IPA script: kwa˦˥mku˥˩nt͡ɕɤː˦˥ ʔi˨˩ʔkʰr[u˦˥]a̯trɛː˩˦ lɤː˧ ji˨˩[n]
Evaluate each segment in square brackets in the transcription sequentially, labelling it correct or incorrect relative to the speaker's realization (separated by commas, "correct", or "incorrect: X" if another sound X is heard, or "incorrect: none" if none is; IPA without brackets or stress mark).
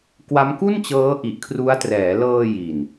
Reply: correct, correct